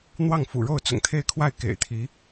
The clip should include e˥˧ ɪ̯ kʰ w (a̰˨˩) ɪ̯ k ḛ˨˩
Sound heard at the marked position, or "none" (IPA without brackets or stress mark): a˥˩